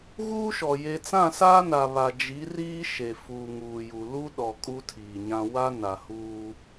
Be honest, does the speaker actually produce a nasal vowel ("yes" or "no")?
yes